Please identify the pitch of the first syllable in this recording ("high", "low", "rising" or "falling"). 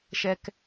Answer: high